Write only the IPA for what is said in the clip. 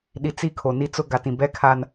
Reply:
ɗ i˨ t͡s i˦ kʰ o˨ n i˦ t͡s ʊ˦ ɡ a˨ t ĩ˨ b ɛ˦ kʰ a˦ n

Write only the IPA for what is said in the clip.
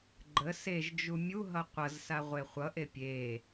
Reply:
ɡ͡ǃ ə s e ʒ d͡ʒ u mʲ u ɦ ʌ qʷ ʌ z s a ʁʷ e χʷ ʌ ʔ e pʲ e

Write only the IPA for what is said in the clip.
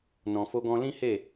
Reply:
n ɔ̃˨ f o˧ ɡ ɔ̃˧ l ĩ˦ h e˦˨

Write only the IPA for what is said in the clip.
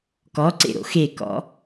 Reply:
k ɔ ǀ ḛ ɾ o̰ x e k ɔ̰

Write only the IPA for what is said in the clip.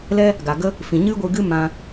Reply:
l ɛ˦ | ɡ a˨ ɡ ə˦ | f ĩ˨ ɲ ɨ˦ ɡʷ ɨ˧ ɡ ɨ˦ m ã˧

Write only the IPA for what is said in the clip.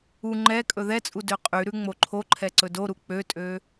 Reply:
u ŋ͡ǃ ɛ kʼ ɵ ð ɛ t͡sʼ u d ø qʼ y ɾ ʉ ŋ͡m o ǃʰ o ǃʰ ɛ ǀ ɵ d o ɾ u k͡p ø tʼ ø

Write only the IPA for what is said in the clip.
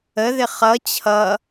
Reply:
ə ð ɪ χ ʌ t͡ɕʰ ʌ

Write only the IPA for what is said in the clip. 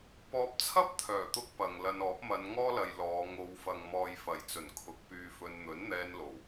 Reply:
p ɔː˧ p̚ t͡sʰ ɐ˥ p̚ t̪ʰ œː˨˩ t̪ ʊ˥ k̚ p ɐ˨ ŋ l ɐ˧ n ɔː˨˥ p̚ m ɐ˨˧ n ŋ ɔː˥ l ɐ˨ j l ɔː˨˧ ŋ o˨˧ w f ɐ˨ ŋ m ɔː˨ j f ɐ˨˩ j t͡s ɵ˨˩ n kʰ ʊ˨˥ k̚ p yː˧ f ɵ˧ n n̪ ɵ˨˥ n n̪ ɛː˧ n l o˨˩ w

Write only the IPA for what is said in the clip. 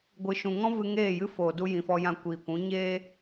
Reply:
ɡʷ ɨ˨ ʃ ũ˨ ŋ ɔ̃˦ v ɨ˧ ŋ eː˦˨ j ɨ˦ f oː˨ d u˧ j ĩ˨ f ɔ˧ j ã˧ kʷ iː˨ kʷ ũ˨˦ ɲ eː˦

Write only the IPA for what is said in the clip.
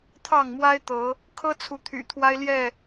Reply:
t̪ʰ ɑ˥˨ ŋ m w a˦ ɪ̯ t̪ ɤ˨˦ | kʰ ɤ˦ t͡sʰ u˨˦ t̪ʰ y̰˨˩ t̪ʰ w a˦ ɪ̯ l j ɛ˥˨

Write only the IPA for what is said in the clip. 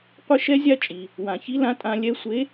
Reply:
qʷ ɪ˥ ʃ ɛ˥ zʲ a˥ t͡ʃʼ i˩ | w ã˩ ç i˧˥ l ã˧˥ tʼ ã˧ lʲ ɛ˧˥ sʷ e˧˥

